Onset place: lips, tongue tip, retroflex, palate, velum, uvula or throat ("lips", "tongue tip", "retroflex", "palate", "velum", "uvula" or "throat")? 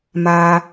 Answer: lips